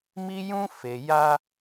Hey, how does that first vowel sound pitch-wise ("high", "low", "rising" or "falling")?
high